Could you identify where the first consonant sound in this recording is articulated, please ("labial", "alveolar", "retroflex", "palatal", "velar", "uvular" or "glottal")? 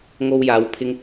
velar